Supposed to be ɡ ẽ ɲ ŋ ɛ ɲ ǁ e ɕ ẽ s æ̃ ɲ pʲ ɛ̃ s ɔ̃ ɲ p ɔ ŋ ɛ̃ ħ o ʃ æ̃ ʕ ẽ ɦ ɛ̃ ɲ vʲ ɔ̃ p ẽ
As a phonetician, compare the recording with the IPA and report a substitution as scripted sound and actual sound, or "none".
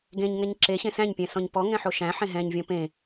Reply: ʕ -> ħ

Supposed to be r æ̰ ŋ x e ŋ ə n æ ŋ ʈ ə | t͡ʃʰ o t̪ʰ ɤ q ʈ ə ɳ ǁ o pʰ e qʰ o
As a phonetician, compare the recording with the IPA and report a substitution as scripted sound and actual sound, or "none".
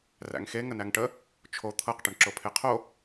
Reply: none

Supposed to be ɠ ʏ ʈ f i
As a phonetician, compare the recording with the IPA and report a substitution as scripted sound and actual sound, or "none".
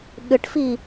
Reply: none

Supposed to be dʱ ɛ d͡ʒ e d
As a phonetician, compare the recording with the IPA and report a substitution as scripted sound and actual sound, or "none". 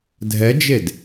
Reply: none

